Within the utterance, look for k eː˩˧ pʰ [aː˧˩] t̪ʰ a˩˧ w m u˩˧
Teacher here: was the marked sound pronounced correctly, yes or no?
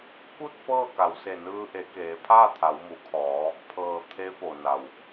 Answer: no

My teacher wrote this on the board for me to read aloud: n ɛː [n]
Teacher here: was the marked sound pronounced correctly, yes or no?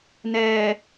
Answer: no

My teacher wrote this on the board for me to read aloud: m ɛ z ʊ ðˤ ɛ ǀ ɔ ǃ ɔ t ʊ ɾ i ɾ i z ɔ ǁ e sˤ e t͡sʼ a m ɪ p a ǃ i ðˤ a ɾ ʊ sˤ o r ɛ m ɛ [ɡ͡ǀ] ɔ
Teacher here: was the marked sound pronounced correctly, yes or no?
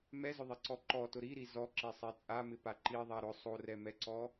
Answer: no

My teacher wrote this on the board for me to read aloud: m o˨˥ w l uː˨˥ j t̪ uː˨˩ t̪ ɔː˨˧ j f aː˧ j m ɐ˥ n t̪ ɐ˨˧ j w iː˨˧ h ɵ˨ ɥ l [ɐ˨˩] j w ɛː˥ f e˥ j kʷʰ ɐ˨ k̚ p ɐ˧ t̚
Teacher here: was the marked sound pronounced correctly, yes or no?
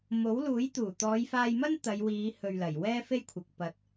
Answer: yes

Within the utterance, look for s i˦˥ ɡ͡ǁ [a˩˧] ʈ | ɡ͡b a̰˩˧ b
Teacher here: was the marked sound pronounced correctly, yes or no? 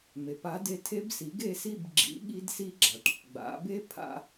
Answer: yes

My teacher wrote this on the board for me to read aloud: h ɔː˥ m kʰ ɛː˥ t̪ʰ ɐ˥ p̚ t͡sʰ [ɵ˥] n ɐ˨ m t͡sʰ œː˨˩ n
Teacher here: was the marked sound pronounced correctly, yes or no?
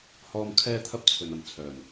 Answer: no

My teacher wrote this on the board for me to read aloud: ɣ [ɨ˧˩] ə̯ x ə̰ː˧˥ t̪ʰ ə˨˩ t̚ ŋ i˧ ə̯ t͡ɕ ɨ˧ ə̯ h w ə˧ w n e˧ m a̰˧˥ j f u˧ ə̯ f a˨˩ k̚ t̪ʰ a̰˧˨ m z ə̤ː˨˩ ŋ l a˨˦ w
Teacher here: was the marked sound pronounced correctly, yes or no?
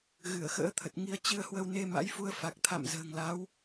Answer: yes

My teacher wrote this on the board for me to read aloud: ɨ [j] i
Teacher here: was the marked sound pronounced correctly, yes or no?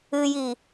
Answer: yes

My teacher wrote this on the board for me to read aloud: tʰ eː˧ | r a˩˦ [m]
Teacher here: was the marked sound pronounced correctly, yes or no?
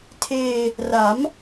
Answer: yes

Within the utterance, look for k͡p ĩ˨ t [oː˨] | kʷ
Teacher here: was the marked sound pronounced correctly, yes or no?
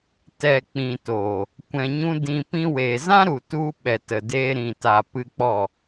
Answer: yes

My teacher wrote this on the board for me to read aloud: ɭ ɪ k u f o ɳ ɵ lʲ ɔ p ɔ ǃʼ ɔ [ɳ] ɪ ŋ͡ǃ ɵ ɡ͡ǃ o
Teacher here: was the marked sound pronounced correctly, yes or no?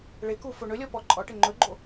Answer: no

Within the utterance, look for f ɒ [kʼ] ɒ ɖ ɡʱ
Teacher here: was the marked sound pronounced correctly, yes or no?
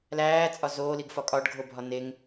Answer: yes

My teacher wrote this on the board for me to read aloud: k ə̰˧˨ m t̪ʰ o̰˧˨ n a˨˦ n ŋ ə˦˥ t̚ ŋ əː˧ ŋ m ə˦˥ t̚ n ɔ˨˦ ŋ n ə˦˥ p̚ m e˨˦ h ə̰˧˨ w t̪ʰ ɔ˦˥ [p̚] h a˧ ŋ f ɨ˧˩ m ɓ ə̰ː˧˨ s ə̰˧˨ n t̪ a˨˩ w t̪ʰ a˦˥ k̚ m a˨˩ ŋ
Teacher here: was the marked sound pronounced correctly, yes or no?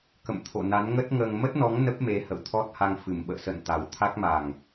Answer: no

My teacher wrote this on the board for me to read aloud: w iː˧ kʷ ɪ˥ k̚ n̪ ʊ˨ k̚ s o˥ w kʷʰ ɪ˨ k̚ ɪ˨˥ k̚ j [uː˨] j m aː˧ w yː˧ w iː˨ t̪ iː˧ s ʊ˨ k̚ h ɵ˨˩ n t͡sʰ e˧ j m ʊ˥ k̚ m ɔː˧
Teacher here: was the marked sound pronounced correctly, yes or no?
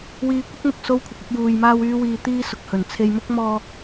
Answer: yes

